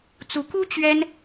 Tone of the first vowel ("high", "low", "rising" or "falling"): rising